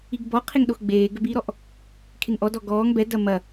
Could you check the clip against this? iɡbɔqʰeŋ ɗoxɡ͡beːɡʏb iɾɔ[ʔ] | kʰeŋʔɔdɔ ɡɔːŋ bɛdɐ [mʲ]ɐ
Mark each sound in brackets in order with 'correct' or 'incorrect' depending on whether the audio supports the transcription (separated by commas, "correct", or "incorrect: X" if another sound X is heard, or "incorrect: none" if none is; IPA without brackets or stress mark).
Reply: correct, incorrect: m